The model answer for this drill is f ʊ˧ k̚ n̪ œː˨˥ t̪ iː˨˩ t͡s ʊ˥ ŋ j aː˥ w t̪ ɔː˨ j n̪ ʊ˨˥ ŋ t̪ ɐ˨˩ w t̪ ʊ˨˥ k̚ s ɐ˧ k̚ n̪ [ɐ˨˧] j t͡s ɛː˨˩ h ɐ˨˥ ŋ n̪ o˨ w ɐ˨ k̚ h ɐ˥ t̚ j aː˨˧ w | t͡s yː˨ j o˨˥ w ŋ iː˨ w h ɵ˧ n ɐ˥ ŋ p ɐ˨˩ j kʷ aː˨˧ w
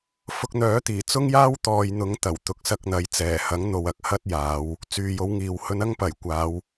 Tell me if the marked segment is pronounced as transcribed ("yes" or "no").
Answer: yes